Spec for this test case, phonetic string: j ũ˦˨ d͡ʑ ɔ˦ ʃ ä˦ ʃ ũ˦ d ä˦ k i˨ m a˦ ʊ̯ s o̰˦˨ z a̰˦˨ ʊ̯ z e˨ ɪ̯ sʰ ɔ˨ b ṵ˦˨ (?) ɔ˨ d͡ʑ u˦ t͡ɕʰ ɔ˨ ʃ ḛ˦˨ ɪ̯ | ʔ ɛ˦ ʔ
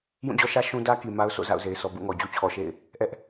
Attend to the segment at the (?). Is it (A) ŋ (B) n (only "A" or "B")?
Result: A